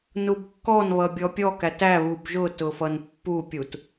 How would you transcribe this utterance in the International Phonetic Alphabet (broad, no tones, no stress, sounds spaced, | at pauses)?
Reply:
n u b kː ɔ n β ʌ bʲ ɔ pʲ ɔ k æ t æ β u b ʒ ʊ t ʊ f ʌ n pː u pʲ u t